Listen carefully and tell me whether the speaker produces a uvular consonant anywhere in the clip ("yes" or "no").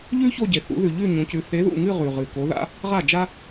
yes